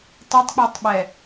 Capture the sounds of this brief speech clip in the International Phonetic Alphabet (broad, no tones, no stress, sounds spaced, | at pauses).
tˤ ɪ tˤ k͡p ɛ tˤ ɓ ɛ